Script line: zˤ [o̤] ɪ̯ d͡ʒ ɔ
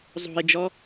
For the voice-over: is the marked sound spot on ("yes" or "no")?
yes